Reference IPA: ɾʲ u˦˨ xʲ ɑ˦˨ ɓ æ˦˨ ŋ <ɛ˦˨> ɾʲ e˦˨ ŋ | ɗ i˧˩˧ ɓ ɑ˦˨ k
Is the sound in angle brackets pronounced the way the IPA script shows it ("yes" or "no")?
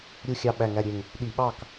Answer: no